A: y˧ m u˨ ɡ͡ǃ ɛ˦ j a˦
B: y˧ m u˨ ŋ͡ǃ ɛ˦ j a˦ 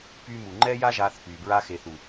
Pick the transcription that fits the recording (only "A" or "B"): B